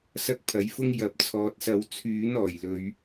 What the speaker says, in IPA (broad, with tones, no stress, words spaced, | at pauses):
sɐ˥k̚pʰɐ˨˥jfʊ˥ŋ jɐ˨˥p̚t͡sʰɔː˨t̚sɐ˨˧w t͡sʰyː˨˥n ɔː˨˩jlɵ˨˧ɥ